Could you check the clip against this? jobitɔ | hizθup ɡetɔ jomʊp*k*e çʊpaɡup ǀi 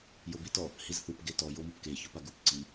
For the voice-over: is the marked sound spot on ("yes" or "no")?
yes